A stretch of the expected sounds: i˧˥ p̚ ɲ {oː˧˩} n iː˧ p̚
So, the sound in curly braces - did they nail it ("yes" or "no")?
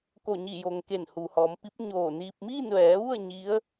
yes